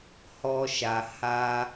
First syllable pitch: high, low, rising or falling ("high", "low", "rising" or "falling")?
high